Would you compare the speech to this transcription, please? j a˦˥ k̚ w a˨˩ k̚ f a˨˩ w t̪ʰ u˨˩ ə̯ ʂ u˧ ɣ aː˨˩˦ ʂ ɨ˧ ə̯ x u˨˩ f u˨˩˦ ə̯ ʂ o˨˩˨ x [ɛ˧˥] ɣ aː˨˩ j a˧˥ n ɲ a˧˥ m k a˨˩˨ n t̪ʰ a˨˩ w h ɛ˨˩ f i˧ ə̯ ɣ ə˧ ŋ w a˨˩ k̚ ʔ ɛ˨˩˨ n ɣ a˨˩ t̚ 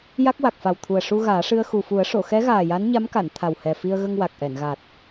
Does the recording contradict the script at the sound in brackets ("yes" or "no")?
no